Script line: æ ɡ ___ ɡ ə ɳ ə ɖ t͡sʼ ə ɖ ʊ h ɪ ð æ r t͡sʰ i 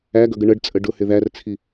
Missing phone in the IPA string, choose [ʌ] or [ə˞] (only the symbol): ʌ